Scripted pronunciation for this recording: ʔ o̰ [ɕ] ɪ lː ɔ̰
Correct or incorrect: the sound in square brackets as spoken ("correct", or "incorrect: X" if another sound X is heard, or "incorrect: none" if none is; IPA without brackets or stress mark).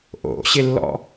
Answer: correct